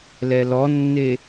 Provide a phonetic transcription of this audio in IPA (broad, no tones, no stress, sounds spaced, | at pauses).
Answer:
l ɛ l ɔ nː e